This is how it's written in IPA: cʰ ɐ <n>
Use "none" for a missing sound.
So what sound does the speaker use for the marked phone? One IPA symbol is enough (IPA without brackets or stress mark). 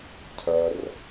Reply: r